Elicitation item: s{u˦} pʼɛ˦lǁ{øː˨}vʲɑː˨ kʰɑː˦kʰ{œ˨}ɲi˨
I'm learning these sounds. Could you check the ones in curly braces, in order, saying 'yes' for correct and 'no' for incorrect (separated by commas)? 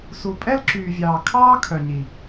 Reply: no, no, yes